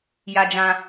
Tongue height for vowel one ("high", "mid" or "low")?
low